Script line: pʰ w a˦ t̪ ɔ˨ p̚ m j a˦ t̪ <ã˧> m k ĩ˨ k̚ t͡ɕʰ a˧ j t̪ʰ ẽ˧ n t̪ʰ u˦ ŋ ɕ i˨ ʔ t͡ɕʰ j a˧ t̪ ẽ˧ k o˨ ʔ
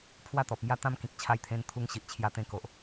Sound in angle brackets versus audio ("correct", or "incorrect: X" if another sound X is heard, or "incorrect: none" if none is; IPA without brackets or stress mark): incorrect: ã˦